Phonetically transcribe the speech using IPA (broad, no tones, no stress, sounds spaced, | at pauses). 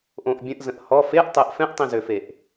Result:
ʔ õ ʔ bʲ ə̃ ʔ z ə̃ ʔ h ɔ f e ʔ tˤ e ʔ f ɛ̃ ʔ tˤ ĩ z ø f e ʔ